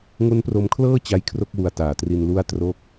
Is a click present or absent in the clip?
absent